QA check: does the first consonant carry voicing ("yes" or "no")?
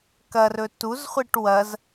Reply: no